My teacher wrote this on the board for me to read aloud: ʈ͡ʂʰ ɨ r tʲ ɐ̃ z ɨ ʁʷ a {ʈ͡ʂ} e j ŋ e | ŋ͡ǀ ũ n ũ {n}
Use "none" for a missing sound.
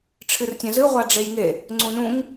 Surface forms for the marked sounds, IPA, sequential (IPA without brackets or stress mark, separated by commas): ɖ͡ʐ, ŋ